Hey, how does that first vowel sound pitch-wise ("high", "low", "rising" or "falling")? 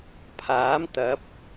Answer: rising